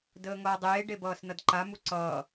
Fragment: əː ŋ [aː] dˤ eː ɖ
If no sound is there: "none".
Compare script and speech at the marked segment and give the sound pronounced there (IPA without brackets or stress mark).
ʌː